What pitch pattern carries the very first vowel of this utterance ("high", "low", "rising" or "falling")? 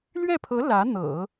falling